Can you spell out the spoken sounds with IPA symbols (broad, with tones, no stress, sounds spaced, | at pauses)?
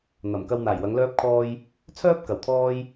n̪ ɐ˨˩ m k ɐ˧ w n̪ aː˨˩ j w ɐ˨˧ ŋ l œː˥ p̚ kʰ ɔː˥ j | t͡sʰ œː˥ p̚ k ɐ˨ w t̪ʰ ɔː˥ j